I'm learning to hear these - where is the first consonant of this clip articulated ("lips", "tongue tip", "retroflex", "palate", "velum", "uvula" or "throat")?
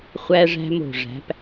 uvula